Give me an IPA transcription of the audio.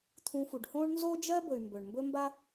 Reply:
t̪ʰ ũ˨ f u˩ ɖ h õː˦ ɳ n z o˦ d͡ʒ ɜ˥ b ɵ˨ y̯ m b ɵ˩ ɳ m b ɵ˦ m b a˦

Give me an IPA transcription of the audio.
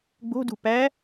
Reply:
ɡ͡b o̤ d ṳ p æ

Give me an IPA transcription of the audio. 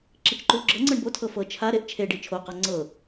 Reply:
ǁ i t͡ʃ ǃ u o̯ ɡ͡ǁ ɤ ŋ͡ǀ ɤ ɳ b o tʰ ɤ f ɤ t͡ʃʰ a ɾ e ʔ t͡ʃʰ e ɖ i t͡ʃʰ o q a ŋ͡ǀ ɤ

